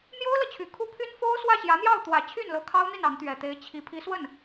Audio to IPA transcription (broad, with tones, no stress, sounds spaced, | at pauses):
n̪ j o˥ ʊ̯ l ɤ˨ t͡ɕʰ y˨˩ kʰ u˥˩ pʰ y˥ n f o˥ ʊ̯ s w ä˥˩ ɕ j ä˧˥ n̪ j ɑ˥˩ ʊ̯ t̪ w ä˨˩ t͡ɕʰ y˥˩ n l ɤ˧˥ kʰ ɑ˥ ʊ̯ n̪ i˥˩ n ɑ˧˥ ŋ t̪ ɥ ɛ˨˩ t̪ e˧˥ ɪ̯ t͡ɕʰ i˧˥ pʰ i˧˥ s w ə˥˩ n